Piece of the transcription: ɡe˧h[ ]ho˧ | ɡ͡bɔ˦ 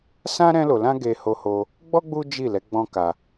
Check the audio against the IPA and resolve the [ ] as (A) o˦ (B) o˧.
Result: B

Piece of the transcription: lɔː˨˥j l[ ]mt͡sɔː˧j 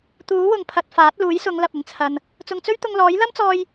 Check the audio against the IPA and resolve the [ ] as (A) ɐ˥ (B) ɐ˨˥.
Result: A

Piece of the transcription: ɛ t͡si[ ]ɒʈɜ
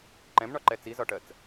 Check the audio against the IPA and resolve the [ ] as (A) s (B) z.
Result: B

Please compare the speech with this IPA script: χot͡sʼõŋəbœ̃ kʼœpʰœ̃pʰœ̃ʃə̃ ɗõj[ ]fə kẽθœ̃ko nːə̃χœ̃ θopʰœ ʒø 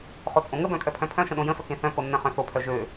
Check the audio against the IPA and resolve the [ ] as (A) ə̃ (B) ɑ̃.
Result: A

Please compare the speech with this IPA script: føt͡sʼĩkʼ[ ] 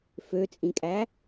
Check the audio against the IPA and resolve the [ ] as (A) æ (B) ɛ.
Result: A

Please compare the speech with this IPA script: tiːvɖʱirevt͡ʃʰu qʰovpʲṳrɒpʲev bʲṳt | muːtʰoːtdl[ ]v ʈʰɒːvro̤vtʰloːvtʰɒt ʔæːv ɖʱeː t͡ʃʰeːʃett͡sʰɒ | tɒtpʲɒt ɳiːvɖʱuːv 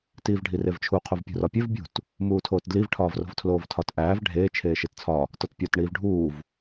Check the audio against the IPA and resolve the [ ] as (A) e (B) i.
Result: B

